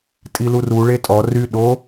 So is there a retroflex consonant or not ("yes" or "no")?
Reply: yes